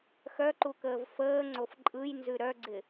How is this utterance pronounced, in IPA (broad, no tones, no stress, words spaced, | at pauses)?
xœǃukəːv fəːŋ͡ǀof ǃʼɯjnzʉ ɾœɡ͡ǀɪ